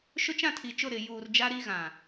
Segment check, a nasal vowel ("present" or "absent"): present